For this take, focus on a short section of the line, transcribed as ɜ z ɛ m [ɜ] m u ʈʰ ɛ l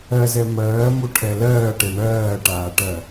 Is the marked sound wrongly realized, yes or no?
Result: yes